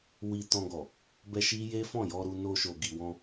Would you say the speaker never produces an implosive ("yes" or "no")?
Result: yes